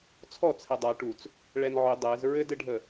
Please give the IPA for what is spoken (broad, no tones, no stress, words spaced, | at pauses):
t͡sʰɔ t͡sʰɛdˤa ʈut͡s | ɭɛnʕʏ dˤɛz ɹɘdɘɖʱə